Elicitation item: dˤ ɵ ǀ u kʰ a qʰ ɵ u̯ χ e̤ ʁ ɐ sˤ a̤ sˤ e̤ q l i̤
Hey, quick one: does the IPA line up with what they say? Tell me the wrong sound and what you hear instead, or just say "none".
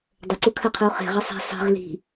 q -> ʁ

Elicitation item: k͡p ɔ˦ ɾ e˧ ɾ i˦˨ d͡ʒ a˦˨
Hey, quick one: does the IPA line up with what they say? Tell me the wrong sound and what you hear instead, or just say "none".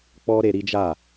i˦˨ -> i˦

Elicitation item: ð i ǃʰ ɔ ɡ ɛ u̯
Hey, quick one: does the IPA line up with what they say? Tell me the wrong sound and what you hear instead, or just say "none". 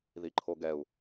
ɔ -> o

